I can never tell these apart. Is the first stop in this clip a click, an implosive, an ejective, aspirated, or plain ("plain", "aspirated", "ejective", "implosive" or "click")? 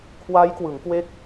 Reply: aspirated